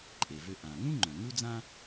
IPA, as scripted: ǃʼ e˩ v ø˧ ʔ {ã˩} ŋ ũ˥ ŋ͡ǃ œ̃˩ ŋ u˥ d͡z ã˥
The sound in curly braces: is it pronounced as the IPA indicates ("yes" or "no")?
yes